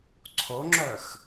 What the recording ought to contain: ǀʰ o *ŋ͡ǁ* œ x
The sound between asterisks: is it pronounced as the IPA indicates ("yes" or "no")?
yes